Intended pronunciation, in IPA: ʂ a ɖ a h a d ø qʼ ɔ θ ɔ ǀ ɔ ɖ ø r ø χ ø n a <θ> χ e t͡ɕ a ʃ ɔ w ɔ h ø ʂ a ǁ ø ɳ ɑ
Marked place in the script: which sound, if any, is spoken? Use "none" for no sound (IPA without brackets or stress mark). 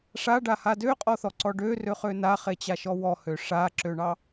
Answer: none